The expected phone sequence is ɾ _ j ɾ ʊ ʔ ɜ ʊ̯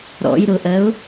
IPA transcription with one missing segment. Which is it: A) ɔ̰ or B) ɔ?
A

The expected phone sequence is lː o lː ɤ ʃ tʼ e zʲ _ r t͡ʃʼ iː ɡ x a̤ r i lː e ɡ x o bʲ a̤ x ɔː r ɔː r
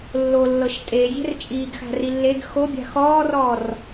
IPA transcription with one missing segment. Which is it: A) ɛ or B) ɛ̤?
B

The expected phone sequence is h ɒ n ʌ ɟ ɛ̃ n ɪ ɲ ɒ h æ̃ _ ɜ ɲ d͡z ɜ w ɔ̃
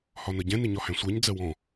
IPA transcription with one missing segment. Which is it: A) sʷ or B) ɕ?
A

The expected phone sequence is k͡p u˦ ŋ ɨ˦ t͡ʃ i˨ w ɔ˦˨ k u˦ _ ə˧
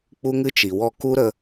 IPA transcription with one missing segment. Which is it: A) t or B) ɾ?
B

